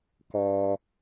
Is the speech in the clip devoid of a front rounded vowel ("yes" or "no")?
yes